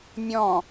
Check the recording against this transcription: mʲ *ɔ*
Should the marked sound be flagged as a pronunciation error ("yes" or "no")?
yes